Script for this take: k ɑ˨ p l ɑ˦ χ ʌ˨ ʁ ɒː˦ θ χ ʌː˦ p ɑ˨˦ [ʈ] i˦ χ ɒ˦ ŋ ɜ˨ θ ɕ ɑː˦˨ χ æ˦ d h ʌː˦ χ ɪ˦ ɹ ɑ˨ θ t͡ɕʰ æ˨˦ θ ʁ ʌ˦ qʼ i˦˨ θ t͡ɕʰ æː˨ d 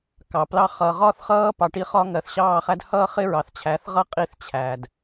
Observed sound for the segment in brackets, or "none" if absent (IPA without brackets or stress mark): ʈ